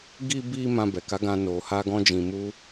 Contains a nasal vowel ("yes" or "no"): yes